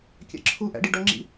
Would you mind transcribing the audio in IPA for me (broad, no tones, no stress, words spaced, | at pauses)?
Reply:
kʲɛ̰ǁʰuʔæ̰ ɖiɖʌŋ͡ǁḭ